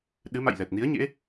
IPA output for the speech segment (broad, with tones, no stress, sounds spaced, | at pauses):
ɗ ɨ˨˦ m a̰˧˨ j l ɛ˨˩ t̚ n i˨˦ ə̯ ɲ ḛ˧˥